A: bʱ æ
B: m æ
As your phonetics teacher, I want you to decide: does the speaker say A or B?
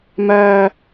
B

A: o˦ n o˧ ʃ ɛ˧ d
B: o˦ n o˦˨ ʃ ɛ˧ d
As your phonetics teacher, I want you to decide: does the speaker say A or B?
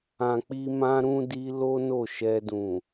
B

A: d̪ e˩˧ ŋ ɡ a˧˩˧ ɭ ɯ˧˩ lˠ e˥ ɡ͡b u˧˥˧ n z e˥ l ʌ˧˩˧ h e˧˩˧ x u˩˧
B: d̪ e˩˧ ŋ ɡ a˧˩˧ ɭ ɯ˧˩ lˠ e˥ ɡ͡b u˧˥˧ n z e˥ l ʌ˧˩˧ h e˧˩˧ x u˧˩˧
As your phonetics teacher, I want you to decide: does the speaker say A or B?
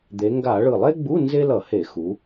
A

